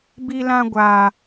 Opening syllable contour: high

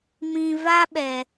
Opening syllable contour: low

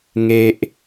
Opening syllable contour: high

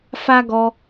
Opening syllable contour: high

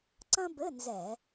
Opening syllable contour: high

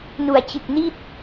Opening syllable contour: low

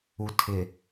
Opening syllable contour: low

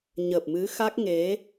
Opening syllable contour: low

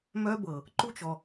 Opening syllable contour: high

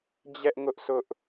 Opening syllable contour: high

